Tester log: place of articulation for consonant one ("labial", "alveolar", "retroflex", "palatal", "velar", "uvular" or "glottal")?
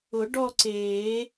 retroflex